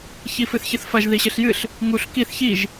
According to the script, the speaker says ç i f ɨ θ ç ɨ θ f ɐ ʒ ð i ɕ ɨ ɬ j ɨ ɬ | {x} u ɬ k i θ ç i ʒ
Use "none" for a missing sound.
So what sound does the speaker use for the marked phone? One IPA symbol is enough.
ŋ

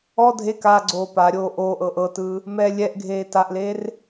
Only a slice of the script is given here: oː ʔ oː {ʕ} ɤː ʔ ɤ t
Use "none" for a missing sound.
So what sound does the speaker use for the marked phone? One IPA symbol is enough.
ʔ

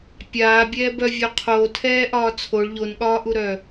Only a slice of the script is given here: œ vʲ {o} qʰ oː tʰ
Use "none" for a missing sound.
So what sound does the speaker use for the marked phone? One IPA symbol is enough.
o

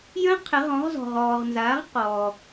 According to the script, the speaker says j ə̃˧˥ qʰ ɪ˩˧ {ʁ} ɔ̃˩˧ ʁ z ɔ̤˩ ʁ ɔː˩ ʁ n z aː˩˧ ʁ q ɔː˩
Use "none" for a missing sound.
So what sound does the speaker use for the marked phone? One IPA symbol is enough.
ʁ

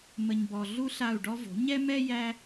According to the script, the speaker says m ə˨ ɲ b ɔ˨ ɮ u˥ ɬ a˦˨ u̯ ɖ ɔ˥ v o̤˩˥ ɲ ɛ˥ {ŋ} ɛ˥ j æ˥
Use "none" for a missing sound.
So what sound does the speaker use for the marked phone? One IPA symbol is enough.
m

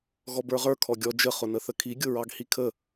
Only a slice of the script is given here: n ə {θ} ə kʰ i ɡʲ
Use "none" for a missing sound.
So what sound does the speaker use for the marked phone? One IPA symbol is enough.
θ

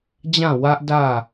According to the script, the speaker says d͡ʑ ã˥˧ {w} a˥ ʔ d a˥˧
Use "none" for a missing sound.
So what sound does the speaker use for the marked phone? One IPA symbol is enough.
w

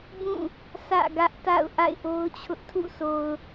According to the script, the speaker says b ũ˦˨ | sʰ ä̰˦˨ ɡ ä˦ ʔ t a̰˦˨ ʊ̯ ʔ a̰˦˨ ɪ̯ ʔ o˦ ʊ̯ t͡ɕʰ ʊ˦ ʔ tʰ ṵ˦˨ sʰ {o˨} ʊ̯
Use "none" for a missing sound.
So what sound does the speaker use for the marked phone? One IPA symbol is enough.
o˨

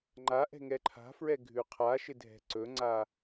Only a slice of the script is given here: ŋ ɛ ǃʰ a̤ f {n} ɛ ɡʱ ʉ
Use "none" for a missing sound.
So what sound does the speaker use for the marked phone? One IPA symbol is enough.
ɹ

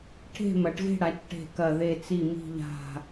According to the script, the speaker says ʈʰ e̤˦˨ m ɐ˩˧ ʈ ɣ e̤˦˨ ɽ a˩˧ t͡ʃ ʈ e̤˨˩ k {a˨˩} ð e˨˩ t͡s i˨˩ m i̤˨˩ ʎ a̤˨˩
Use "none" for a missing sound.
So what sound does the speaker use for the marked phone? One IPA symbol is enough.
ɐ˨˩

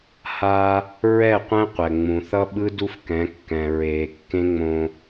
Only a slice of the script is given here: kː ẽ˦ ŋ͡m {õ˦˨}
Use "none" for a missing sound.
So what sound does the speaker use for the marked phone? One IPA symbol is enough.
õ˦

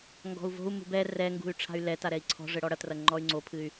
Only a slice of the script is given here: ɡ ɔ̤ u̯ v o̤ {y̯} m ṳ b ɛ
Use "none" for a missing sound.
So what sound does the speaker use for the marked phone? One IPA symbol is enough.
u̯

